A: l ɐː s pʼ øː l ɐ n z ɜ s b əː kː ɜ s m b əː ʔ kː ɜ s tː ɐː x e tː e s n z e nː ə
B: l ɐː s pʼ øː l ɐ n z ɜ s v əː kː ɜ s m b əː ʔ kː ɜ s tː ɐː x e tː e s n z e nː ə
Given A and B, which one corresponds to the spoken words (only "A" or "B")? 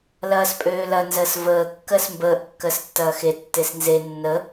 B